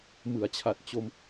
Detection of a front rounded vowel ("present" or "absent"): absent